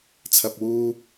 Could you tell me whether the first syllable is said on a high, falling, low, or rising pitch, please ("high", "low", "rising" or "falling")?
low